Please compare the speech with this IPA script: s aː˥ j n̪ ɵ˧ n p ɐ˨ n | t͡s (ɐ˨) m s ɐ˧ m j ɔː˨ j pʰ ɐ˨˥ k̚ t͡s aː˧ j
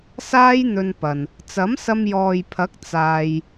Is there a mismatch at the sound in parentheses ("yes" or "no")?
yes